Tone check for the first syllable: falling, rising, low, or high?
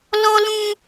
high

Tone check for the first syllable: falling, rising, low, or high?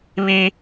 high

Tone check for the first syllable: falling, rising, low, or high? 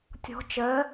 rising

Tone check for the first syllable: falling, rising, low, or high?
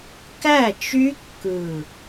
falling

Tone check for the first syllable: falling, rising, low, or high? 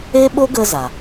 high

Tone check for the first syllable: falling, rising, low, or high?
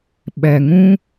low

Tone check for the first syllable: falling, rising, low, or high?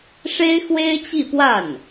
high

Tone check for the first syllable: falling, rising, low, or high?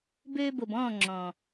high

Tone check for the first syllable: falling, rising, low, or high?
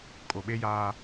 low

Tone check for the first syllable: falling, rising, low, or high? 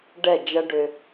falling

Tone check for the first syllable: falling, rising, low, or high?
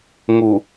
low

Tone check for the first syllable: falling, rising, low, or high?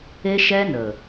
high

